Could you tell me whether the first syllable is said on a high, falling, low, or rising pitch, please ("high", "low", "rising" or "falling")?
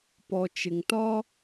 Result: low